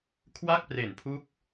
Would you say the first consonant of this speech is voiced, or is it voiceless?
voiceless